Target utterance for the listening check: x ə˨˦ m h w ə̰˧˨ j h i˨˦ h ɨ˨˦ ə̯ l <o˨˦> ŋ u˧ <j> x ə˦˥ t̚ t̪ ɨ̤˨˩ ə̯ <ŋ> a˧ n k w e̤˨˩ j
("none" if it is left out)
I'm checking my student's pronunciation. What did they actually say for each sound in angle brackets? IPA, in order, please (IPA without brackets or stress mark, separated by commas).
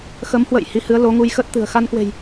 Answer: o˨˦, j, x